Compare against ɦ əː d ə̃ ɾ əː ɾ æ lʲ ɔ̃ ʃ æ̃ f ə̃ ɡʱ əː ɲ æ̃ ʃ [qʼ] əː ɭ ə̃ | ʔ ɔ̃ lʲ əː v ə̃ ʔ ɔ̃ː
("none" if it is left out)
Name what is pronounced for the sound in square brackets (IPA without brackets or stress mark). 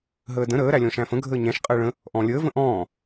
qʼ